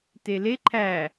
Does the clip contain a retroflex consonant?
no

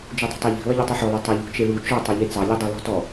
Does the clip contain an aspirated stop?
no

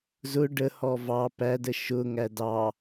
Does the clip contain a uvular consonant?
no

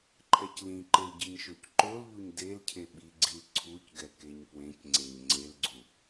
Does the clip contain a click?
yes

